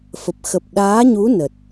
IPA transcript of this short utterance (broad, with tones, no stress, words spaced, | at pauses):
fə˨˩p̚ xə˨˩p̚ ɗaː˨˦ɲu˨˦ nə˨˩t̚